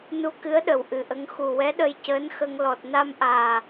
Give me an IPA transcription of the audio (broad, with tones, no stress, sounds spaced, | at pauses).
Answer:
n u˧ k ɨ˧˥ ə̯ ɗ ə˨˩ w ʔ ɨ˨˩ ʔ ə˧˥ ŋ x u˨˩ w ɛ˧˥ ɗ ə˧ j c əː˧˥ n x ə˧ ŋ l ɔ˨˩ t̚ n a˧ m ʔ aː˨˩